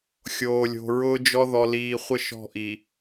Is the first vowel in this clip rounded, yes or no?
yes